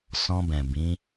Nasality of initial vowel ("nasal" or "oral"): nasal